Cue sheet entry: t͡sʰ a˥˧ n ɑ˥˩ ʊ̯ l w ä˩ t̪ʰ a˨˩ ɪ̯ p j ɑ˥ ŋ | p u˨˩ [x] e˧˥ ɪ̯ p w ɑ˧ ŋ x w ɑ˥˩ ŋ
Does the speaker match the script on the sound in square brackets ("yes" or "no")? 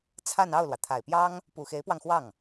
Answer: yes